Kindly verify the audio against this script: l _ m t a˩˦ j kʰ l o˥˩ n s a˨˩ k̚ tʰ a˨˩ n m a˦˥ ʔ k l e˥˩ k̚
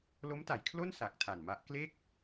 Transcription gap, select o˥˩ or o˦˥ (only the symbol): o˦˥